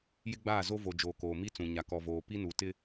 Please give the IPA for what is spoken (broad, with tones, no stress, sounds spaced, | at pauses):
j ɪ˦ ɡ͡b aː˦˨ z o˦ v o˨ d͡ʒ oː˨ k oː˨ m i˦ t͡s ũ˨ ɲ a˨ k ɔ˨ v oː˨ p i˦ n u˨ t ɪ˦